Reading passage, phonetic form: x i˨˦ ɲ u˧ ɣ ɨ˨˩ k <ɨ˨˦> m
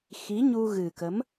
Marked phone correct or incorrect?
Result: incorrect